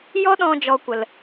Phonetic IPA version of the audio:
j ɔ˦ ɗ ɔ̃˧ d͡ʒ ɔ˦ kʷ ə˧ l

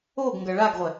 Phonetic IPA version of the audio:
o ɡ ŋ ɡ ɐ ɭ a ɡ ʁʷ ɛ

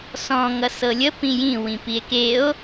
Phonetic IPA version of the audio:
s ɔ̃ ŋ ʌ s ɤ lʲ ə p ĩ j ĩ w ĩ p i e̯ k e o̯

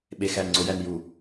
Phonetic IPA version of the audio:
ɓ e x æ n ŋ͡ǀ o j æ n j u

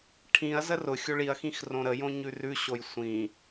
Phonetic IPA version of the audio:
ʈʰ ĩ ɐ̯ z ə r ʊ xʲ o ɭ i ɐ̯ x ĩ x r õ ɾ ə j õ ɲ ʉ r ʉ ɕ o j sʷ ĩ

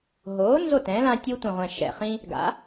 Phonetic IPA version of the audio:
ɦ oː˩˥ n z o˥˩ t ɛ̃ː˩˥ l ã˦ tʲ uː˦ tʷ ĩ˨˩ ʁʷ ɛ̃˨˩ ʃ ɛ̰˨˩ χ ĩ˦ | ɡ a̰˩˥

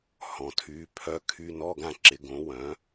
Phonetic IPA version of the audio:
h ɔ̃˨˩ tʰ yː˩˥ pʰ œ˧˥˧ kʰ y˧˥˧ n ɔ˧˥˧ ɡ ã˥˩ ǁ ɪ˩˥ ɡ õ˩˥ w œ̃˩˥

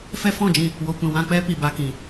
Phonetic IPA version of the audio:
f ɛ˦ f ɔ̃˦˨ d͡ʒ ĩ˧ | w o˨ kʷ ĩ˨ w ã˧ k͡p ɛ˦ p i˨ b a˨ k ĩ˨

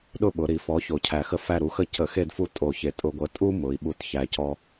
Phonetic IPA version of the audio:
ɗ ʊ˦˨ ɓ ʊ˩˧ ɾ i˩˧ f ɔ˩˥ ç o˨˩ cʰ æ˨˩ x ə˦ f æ˦˨ ɾ u˩˥ x ə˦˨ c ə˧˩˧ x e˦˨ d f u˦˨ tʼ o˧˩˧ ç e˨˩ tʼ ʊ˧˩˧ ɡʷ ə˩˥ tʼ u˦ m ʊ˩˧ i̯ ɓ u˨˩ t ç æ˨˩ c ɔ˦

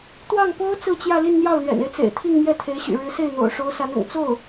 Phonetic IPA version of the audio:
t̪ w ɑ˥˩ ŋ p o˥ ʊ̯ t͡s ɹ̩˥˧ t͡ɕ j ä˥˧ l i˥˧ n n̪ j ɑ˥˩ ʊ̯ l ɥ ɛ̰˨˩ n e˦ ɪ̯ t͡s ḛ˨˩ ɪ̯ t̪ʰ i˥˧ ŋ m j ɛ˥˩ t̪ʰ e˧˥ ɪ̯ ɕ y̰˨˩ ɻ ɻ̩˧˥ s e˥˩ ɪ̯ n̪ o̰˨˩ ʊ̯ ʂ o˧˥ ʊ̯ s a˧˥ n ʊ̰˨˩ ŋ t͡s o˥˩ ʊ̯

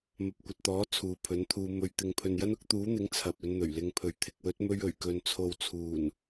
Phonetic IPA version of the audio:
m ɐ˨ p̚ kʷ ɐ˨ t̚ t̪ ɔː˨˥ t͡sʰ uː˨ pʰ ɵ˨˥ n t̪ʰ uː˧ m ɵ˨ ɥ t̪ ɪ˨ ŋ pʰ ɵ˨ n j ɐ˥ n ʊ˨˥ k̚ t̪ uː˨˥ n̪ ɪ˨˥ ŋ t͡sʰ ɐ˨ p̚ ɵ˧ n n̪ ɵ˨˩ ɥ l ɪ˧ ŋ pʰ ɵ˨ ɥ t̪ʰ ɪ˨ k̚ w ɵ˨˥ t̚ m ɵ˧ ɥ ɵ˨˩ ɥ k ɵ˨ n t͡sʰ o˨ w t͡sʰ uː˨˩ n

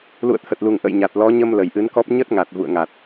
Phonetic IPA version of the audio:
l ṵ˧˨ ə̯ t̪ʰ ə˨˩ t̚ l u˨˩ ŋ ʔ ə̰˧˨ j ɲ a˨˩ t̚ l ɔ˨˦ ɲ ə˧ m l ə˨˩ j ʔ ɨ˨˦ n k ɔ˦˥ p̚ ɲ ə˦˥ t̚ ŋ a˨˩ t̚ v ṵ˧˨ ə̯ ŋ a˨˩ t̚

